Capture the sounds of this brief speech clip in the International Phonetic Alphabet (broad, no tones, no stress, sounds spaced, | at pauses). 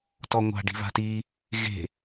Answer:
t ɔ ŋʷ a̤ ɖ i̤ β a̤ t i | ɣ e̤